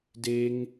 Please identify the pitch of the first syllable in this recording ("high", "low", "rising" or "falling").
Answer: high